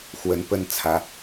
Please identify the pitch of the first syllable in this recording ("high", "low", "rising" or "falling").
rising